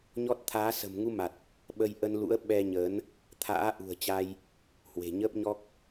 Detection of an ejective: absent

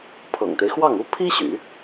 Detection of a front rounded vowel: present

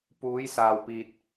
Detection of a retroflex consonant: absent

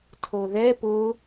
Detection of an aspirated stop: present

